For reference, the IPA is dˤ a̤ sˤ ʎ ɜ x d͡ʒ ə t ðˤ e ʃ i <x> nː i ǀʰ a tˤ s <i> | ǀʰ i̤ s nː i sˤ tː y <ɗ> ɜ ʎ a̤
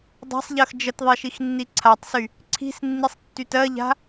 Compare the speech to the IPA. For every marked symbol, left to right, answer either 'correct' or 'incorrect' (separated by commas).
correct, incorrect, incorrect